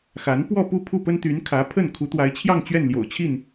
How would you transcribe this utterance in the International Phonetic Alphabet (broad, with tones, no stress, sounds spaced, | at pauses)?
x a˧˥ n p w ɔ˥˧ p u˥˧ pʰ u˥˩ p ə˥ n t̪ y˧˥ n kʰ ä˧˥ pʰ ə˥˩ n kʰ u˧˥ t̪ w a˧˥ ɪ̯ t͡ɕʰ j ɑ˥˧ ŋ t͡ɕ ɥ ɛ˥˩ n l j o̰˨˩ ʊ̯ t͡ɕʰ i˥˩ n